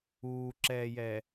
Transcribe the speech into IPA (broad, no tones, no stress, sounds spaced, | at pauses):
uː ǁ ɛː j ɛ